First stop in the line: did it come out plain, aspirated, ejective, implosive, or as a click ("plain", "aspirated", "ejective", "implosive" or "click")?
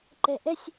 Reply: click